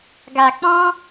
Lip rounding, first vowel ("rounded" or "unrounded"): unrounded